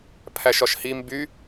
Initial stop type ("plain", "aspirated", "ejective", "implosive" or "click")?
aspirated